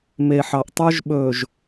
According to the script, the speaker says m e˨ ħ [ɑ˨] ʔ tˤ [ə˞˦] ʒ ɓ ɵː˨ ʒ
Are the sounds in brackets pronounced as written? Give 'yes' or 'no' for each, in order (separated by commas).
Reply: yes, yes